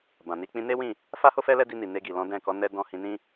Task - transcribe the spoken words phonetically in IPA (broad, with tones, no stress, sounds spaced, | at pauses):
b ã˨ n i˧ k͡p ĩ˧ n e˦ w ĩ˦˨ | f a˦ h o˦ f ɛ˦ l ɛ˦ d i˧ n i˨ n e˧ ɡ i˨ l ɔ̃˨˦ d ɛ̃˦˨ k ɔ˨˦ n ɛ˧ d ɔ̃˧ h ĩ˧ n ĩ˦